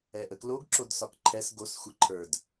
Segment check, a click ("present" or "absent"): present